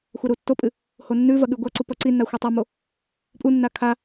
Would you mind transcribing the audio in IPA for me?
xʷ a ɾ u tː o pʼ ɨ | h o nː ʉ v ɐ ɠ ʉ ɡʷ a ǀ u p ɐ ǀ i nː a xʷ e tˤ a m o | pʼ u nː a kʰ a

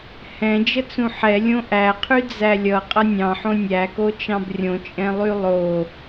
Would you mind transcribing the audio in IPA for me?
h ɛ̃ d͡ʒ ə t͡s ũ ħ ɛ lʲ õ ʔ æ qʰ y d͡z æ lʲ ʌ qʼ ʌ nʲ ɑ̃ ħ õ nʲ æ k o t͡ʃ ɑ̃ b rʲ õ t͡ʃʼ ɛ̃ lˠ y lˠ o

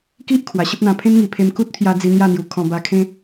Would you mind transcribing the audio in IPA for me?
k i˦ ʔ kʰ w a˨˩ ɕ ə˦ p̚ n̪ ã˧ pʰ ẽ˦ n ŋ i˨˩ pʰ e˧ m k u˦ t̚ pʰ j a˧ d͡z i˧ n̪ j a˥˧ n̪ j u˨˩ kʰ ɔ̃˧ b a˧ kʰ ẽ˦

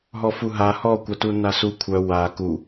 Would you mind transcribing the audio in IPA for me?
ɦ ɔ f u ɦ a h ɔ kʷ a t u nː a s u kʷʰ œ w a k u

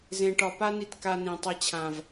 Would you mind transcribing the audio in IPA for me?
z ẽ˨ ʈ ɒ˨ p a˦ n i˧ t k a˧ n ĩ˨ tˤ e˧ t͡ɕʰ ã˨ v

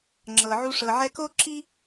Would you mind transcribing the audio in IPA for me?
ŋ͡ǁ ɤ˨ ʕ u˧ ʂ ɤ˨ ʕ ɛ˧ k o˦ ǁ i˦

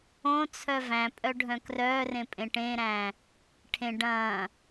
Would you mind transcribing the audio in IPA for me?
õ t͡sʰ œ v æ̃ pʼ œ ɖʱ œ̃ k r œː r ẽ pʼ ẽ ʈ ẽ ɾ æ̃ː | ʈʰ ẽ ɖ ɐ̃ː

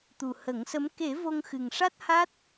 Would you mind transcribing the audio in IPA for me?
t̪ u˨˩ h ə˨˩˦ ŋ s ə˧˥ m k e˨˩˦ v o˧ ŋ x ɨ˨˩ ŋ ʂ a˦˥ t̚ h a˦˥ t̚

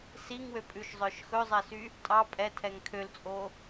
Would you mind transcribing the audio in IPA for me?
s i ŋ w ø pʼ ʉ ʃ zˤ œ ʃ x ɵ zˤ ɛ s y | tʼ ɑ pʼ ɛ tʰ ɛ ŋ kʰ ø l t͡sʼ o

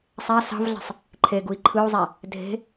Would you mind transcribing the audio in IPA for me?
sˤ æ s ɑ̤ v ɮ æ̤ sˤ | ǃʰ e ɡ u i̯ ǃʰ ɯ u̯ zˤ æ | dʱ e̤

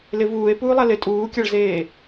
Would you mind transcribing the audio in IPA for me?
l ɪ v uː e̯ p uː lˠ a l ɪ tʼ uː kʲ a ɭ z eː

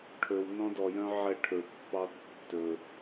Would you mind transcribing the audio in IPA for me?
ʈʰ ɵ w n ɔ̃ d ɔ j œ̃ ʕ ɛ ʈʰ ɵ pː ɑ tː ɵ

